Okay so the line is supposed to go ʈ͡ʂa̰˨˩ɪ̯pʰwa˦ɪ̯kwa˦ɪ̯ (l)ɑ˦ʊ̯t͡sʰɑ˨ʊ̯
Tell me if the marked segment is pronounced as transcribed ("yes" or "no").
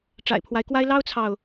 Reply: yes